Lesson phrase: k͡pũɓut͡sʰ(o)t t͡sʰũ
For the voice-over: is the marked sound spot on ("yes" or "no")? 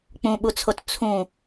yes